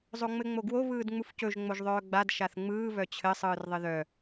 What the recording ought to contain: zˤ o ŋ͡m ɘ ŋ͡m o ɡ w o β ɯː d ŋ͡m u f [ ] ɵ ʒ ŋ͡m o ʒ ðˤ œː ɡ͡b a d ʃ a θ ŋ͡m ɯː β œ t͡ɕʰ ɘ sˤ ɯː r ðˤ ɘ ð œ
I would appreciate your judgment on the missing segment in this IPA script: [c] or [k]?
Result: c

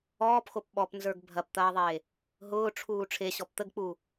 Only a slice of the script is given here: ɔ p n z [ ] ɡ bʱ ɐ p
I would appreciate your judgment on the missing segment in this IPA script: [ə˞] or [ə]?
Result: ə˞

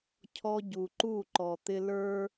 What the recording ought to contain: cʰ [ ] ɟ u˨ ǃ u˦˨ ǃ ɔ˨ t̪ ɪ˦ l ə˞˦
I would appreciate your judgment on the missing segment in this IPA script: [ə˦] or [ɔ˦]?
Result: ɔ˦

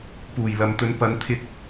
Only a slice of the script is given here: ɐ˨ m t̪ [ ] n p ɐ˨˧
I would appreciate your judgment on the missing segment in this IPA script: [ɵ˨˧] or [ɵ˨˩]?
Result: ɵ˨˧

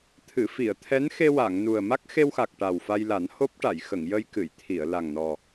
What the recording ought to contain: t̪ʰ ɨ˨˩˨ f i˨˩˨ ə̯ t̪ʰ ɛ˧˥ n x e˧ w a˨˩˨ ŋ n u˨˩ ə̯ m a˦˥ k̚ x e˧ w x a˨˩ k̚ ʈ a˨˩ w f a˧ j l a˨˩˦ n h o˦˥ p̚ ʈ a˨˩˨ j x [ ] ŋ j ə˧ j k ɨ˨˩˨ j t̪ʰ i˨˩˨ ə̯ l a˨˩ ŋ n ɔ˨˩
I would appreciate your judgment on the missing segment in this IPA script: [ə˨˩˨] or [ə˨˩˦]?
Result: ə˨˩˨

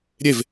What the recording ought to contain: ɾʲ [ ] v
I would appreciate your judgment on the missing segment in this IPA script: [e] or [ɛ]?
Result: e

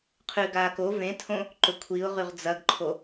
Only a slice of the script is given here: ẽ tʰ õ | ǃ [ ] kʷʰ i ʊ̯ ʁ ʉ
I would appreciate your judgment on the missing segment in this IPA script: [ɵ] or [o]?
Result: ɵ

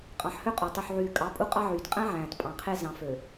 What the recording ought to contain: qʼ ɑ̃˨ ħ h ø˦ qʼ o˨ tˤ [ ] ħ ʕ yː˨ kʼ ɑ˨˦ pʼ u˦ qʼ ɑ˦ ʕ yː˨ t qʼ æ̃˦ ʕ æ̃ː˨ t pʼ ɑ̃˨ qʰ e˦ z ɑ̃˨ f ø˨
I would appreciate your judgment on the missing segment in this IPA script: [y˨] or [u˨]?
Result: y˨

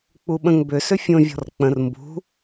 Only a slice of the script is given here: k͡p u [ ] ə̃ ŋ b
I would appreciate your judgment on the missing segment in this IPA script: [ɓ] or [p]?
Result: ɓ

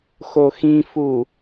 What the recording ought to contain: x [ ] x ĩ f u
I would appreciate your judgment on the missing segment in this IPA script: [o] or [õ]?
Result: o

